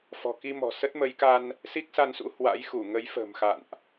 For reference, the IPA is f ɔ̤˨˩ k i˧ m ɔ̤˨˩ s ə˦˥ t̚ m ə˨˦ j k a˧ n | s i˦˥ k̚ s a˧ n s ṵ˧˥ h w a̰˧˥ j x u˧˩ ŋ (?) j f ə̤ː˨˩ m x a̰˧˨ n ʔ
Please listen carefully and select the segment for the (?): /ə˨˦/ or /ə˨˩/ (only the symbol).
ə˨˦